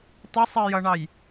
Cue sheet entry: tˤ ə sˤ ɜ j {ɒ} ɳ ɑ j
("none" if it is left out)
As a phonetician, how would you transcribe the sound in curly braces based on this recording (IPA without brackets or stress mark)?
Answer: ʌ